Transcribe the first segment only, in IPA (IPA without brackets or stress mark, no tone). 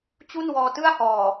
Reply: t͡ɕ